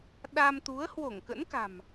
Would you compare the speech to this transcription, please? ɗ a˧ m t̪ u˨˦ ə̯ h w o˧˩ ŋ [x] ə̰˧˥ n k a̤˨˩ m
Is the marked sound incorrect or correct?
incorrect